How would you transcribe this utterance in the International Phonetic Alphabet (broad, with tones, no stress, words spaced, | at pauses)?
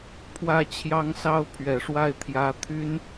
pʰwä˥˩t͡ɕʰjɑ˥ŋsɑ˥ʊ̯ pʰɥɛ˨˩ʂwa˥˩ɪ̯ t̪ʰjä˧˥ t̪ʰy˥n